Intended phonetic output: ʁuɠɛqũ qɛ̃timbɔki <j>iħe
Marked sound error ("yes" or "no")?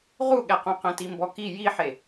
no